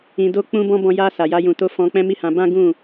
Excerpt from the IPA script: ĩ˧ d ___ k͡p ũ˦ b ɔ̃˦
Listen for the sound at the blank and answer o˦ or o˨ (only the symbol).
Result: o˦